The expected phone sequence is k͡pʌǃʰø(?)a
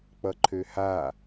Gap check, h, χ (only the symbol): h